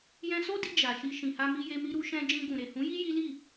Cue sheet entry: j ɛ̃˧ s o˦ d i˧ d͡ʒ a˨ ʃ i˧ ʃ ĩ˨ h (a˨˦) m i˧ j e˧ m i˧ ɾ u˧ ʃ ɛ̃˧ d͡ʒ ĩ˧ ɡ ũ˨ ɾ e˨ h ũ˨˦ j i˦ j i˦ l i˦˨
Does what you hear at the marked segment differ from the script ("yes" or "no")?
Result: yes